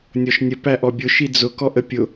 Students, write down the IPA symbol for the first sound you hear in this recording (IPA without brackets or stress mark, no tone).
nʲ